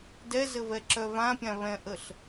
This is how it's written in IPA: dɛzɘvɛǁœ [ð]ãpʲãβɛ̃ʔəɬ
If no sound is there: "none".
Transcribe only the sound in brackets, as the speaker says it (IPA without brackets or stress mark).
v